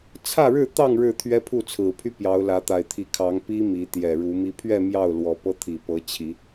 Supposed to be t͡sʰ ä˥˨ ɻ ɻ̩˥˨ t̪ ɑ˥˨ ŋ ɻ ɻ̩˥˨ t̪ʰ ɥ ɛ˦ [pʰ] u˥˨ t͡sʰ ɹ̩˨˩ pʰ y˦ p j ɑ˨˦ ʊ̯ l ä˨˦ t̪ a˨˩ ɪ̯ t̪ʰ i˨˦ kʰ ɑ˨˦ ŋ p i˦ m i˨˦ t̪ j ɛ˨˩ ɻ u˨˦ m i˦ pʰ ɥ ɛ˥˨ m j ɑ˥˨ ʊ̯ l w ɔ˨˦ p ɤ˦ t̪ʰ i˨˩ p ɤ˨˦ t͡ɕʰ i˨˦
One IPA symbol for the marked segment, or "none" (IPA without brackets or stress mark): pʰ